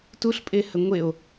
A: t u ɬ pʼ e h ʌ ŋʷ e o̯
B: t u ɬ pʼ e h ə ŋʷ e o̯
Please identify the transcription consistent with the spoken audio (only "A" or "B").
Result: B